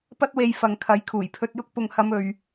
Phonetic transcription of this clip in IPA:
p ɐ˥ t̚ w e˧ j f ɐ˨ ŋ kʰ ɐ˨˥ j kʰ uː˨˩ j pʰ ɵ˧ t̚ j ʊ˥ k̚ p ʊ˨ ŋ h ɐ˨˧ m ɵ˨ ɥ

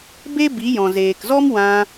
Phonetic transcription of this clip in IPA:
b e˦ b i˨˦ j ɔ̃˨ z eː˨ k z ɔ˦ m w ã˧

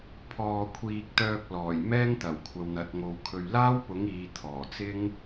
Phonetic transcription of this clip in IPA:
pʰ ɔː˨ kʷʰ iː˨ k̚ t̪ œː˧ k̚ l ɔː˨˩ j m ɛː˥ ŋ t̪ ɐ˨˩ w kʷʰ ɐ˧ w n̪ ɐ˨˥ t̚ ŋ o˧ w kʰ ɵ˨ ɥ l aː˥ w p ʊ˨˥ ŋ iː˨˧ t̪ʰ ɔː˨˩ t͡s ɪ˥ ŋ

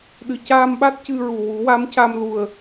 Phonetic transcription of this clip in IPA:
ɗ ɨ˨˩ c aː˧ m ɓ a˦˥ t̚ c ɨ˧ ɹ u˨˩ w u˨˩˦ w a˧˥ m c a˧ m l u˨˩ ə̯

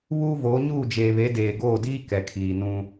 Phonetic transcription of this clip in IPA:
β uː˦ v oː˨˦ ɲ uː˦˨ d͡ʒ eː˨ β e˨˦ d eː˨ ɡ oː˦˨ d iː˦ k ɛ˨ kʰ iː˨ n ũ˦

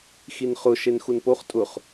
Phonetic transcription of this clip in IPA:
x i n χ ʊ ʃ e n x u n p o χ tʼ ʊ χ

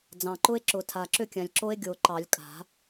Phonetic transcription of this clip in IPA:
d͡z ɑ̃˨˩ ǃ ʊ˦˥ e̯ ǁ ʊ˨˩˦ tʰ a˨˩ ǁ ʏ˥˨ kʲ ã˨˩ lʲ ǁ o˦˥ e̯ ɡʲ o˨˩ ǃ ɑ˨˩˦ lʲ kʼ a̤˨˩˦

